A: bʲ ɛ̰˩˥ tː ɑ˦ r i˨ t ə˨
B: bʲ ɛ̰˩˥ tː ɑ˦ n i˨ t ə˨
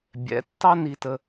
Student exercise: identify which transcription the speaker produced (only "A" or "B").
B